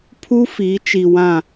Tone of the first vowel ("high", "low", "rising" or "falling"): high